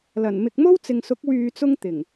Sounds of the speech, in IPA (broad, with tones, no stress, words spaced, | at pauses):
lɐ˨˩nmɪ˨k̚mo˥w t͡sɪ˨ŋsʊ˨˥k̚ wyː˨t͡sʊ˧ŋ t̪ɪ˨˩ŋ